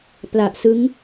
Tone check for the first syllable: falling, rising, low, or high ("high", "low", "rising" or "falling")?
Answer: low